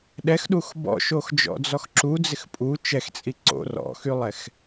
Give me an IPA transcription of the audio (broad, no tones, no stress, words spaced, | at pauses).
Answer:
ɗɛxɗux bɔ̰ʃoxd͡ʒɔ̰d͡zɔx ǁud͡zɪx pʼu t͡ʃɛxt͡sʼi ǀo̰ rɔ̰xylˠɛx